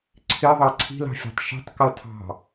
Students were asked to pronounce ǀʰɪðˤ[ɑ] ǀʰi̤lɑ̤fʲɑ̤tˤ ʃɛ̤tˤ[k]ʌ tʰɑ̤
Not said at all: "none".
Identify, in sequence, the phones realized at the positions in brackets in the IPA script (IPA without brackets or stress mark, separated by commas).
ɑ, k